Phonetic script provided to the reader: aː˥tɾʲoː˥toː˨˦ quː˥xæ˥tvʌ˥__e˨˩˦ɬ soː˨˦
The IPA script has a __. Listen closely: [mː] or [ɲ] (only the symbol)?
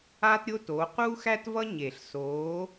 ɲ